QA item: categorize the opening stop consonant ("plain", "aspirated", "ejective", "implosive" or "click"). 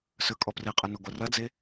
ejective